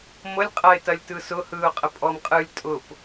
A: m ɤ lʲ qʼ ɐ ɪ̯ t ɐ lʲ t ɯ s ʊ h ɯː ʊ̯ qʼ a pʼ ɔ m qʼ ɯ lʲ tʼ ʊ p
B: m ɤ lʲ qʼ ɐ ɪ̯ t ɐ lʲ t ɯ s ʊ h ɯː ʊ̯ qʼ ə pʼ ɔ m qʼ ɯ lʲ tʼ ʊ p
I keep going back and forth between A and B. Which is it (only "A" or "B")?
B